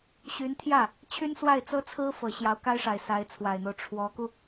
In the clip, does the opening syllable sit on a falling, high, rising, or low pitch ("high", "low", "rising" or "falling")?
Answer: rising